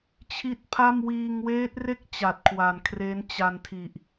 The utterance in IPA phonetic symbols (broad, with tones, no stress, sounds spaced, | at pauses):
t͡ɕʰ i˦˥ t̚ pʰ a˥˩ m w iː˧ ŋ w eː˦˥ t̚ r e˥˩ k̚ t͡ɕ a˨˩ t̚ kʰ w a˨˩ n kʰ r e˦˥ n t͡ɕ a˧ n tʰ i˨˩ ʔ